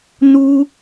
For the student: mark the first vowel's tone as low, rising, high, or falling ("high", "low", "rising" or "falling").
high